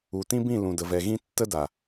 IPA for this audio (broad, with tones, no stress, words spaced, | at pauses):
u˨tĩ˦bĩ˦˨ lũ˨də˨vɛ˨ɣĩ˦ tːə˦ da˨